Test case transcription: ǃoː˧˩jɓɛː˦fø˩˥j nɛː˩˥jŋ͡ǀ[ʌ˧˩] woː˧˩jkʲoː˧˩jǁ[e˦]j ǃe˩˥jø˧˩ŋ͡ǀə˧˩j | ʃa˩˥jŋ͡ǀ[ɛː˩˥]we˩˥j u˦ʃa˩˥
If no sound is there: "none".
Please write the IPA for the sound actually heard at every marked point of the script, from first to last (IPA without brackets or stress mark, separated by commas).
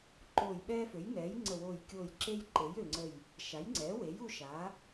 ə˧˩, e˦, ɛː˩˥